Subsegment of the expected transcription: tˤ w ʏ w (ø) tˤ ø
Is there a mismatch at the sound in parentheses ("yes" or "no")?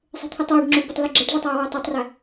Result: no